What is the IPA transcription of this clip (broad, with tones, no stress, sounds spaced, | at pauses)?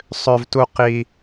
sˤ ø˧ v t u˧ q i˧